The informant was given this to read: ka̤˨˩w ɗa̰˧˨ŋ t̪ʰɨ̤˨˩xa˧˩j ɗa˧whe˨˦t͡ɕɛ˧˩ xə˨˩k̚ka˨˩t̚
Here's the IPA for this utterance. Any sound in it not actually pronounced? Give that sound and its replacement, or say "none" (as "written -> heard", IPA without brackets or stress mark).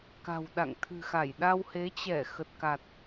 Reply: k̚ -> t̚